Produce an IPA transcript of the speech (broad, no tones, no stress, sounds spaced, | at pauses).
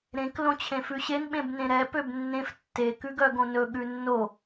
ɾ ẽ k l õ t͡ɕʰ ẽ f ʉ ɕ e n ɓ ẽ b n ẽ ɾ ɛ p ø b nː ẽ f tː e k ʉ ɡ œ ɡ õ n ɵ ɠ ʉ nː o